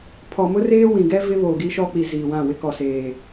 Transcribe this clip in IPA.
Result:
pʰ ɔ˨ m ʊ˦ r eː˦ w ĩ˨ ɡ ɛ˦ v ɪ˦ β oː˨ ɡ i˦ ʃ ɔ˦ k͡p i˨ z iː˨ w ã˦˨ w ɪ˦ k ɔ˨ s eː˨

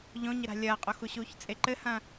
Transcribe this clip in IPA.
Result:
ʎ õ ɲ ɘ ɾ a̤ lʲ ɐː qʼ o x u ɕ uː ç t͡sʼ e ǃ ɘ h ɐ̃

